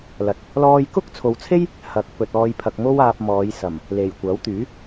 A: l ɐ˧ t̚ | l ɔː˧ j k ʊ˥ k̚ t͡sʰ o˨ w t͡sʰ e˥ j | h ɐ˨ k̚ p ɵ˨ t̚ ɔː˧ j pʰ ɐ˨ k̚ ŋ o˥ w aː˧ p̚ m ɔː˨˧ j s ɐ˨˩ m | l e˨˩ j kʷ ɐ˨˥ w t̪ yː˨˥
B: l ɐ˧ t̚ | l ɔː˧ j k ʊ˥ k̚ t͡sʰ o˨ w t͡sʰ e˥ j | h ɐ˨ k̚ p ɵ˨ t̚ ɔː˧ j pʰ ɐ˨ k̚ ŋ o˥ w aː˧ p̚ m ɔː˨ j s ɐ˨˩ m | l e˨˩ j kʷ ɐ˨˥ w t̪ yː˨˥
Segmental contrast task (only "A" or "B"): A